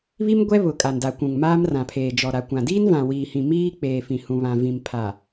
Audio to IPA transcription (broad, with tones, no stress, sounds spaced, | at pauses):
β i˦ m ɡʷ ɛ˦ β ʊ˨ kʼ a˨ n d a˨ kʷ ũ˨ ŋ m aː˦ m r ã˨ pʰ eː˨ d͡ʒ ɔ˨ ɾ a˨ kʷ ã˨ d iː˦ n v ã˨ w iː˨ h ĩ˨ m iː˦ k͡p eː˨ f ĩ˨ h ũ˨ β ã˨ v ĩ˨ m pʰ a˨